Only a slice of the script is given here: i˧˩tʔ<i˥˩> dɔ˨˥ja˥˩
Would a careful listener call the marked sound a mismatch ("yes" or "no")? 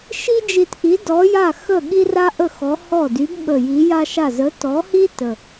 yes